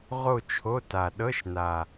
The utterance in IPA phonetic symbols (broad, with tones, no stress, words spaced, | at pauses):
ʁo˥˧t͡ʃʰo˧˥˧ ta˨˩ ɗɤ˧˥˧ʃna˨˩